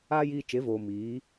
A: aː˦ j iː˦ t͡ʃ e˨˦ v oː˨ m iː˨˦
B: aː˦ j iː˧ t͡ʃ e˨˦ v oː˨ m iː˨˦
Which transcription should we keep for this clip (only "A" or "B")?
B